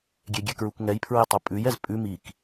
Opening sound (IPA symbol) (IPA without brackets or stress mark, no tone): ɡʲ